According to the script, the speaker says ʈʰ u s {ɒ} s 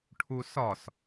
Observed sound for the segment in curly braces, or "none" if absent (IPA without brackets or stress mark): ɒ